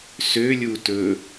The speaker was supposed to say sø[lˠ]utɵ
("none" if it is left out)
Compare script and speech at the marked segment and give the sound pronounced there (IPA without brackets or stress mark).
lʲ